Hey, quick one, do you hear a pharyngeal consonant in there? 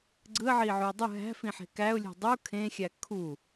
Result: yes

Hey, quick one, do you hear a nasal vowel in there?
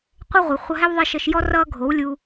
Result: no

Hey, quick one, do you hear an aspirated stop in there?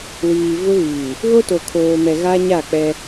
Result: yes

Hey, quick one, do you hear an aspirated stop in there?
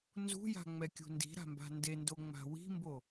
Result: no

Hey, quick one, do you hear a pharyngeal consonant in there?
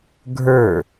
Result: no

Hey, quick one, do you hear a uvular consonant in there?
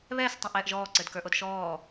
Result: no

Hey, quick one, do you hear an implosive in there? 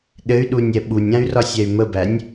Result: yes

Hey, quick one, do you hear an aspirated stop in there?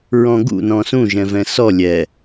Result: no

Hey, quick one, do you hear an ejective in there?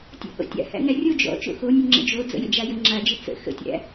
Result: no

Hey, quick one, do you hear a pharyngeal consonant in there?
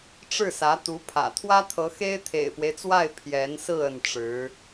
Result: no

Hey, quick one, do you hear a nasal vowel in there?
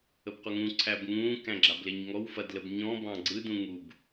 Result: yes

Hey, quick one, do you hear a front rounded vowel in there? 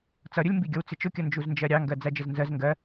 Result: no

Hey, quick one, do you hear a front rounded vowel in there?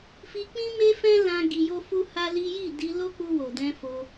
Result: no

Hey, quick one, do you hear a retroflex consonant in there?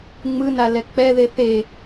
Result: no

